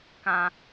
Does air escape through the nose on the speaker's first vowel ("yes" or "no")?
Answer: yes